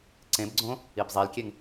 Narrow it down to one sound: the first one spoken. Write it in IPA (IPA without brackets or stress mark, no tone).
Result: ǀ